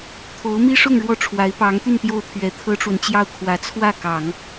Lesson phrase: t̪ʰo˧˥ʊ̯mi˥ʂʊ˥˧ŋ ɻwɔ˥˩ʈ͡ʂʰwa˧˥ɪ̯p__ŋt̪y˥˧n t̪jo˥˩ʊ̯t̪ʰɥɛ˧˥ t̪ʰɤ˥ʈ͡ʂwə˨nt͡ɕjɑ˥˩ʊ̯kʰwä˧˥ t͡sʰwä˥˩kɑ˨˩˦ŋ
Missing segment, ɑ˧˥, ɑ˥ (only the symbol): ɑ˧˥